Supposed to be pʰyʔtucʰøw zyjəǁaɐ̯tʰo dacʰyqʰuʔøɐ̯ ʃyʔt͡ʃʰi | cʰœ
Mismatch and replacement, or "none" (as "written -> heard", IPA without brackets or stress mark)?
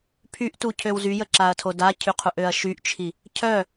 none